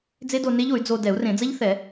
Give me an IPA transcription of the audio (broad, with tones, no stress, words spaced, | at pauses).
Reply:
d͡ze˦˥do˧ne˦˥ʎ o˨˩˦y̯d͡zo˧ dɛ˨˩˦u̯rẽ˨˩˦d͡zɐ˦˥ʎθɛ˨˩˦